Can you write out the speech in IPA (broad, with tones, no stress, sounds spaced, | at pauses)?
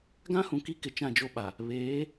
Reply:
ɡ ã˦ h ũ˨ k i˦ k ɪ˨ t͡ʃ ã˦˨ d͡ʒ o˦ ɓ a˨ | β eː˨˦